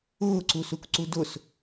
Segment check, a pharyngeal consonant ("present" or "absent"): absent